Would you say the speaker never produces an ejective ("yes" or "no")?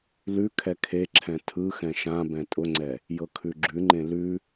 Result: no